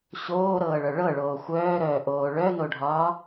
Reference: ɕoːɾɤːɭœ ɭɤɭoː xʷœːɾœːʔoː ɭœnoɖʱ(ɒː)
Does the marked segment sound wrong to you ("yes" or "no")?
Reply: no